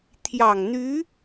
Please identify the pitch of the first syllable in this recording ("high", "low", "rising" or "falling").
low